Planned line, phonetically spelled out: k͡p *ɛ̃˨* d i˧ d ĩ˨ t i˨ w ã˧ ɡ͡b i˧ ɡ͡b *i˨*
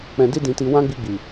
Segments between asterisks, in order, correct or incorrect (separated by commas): correct, correct